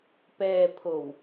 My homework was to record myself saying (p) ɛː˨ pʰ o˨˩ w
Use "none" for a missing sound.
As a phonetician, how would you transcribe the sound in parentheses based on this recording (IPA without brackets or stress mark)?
p